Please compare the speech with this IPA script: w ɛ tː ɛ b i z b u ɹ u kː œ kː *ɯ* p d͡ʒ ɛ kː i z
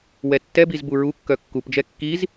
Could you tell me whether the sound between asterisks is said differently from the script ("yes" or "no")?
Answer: yes